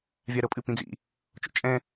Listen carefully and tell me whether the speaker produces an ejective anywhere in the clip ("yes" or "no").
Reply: yes